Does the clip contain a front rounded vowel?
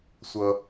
no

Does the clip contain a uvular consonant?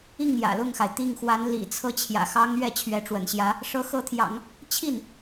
no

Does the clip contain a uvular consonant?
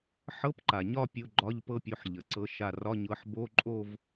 no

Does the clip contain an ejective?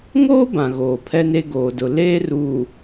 no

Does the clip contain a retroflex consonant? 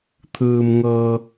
no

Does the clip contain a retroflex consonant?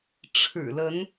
yes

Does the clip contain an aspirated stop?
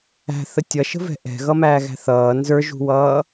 no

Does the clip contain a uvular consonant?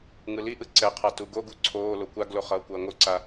yes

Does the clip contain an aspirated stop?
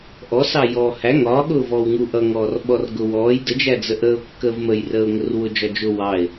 no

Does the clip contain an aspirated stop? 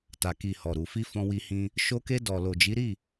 no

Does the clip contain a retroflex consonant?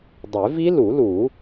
no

